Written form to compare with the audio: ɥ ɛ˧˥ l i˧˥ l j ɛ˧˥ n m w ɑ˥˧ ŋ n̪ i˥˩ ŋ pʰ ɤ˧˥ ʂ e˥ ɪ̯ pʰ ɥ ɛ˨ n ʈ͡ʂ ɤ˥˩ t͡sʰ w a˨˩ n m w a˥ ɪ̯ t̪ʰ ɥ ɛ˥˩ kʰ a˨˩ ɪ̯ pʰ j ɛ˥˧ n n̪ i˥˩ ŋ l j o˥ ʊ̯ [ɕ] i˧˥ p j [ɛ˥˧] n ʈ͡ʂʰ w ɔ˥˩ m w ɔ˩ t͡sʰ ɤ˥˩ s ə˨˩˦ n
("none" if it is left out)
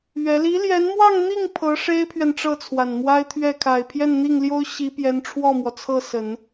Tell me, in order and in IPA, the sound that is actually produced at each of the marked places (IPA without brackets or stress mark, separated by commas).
ɕ, ɛ˧˥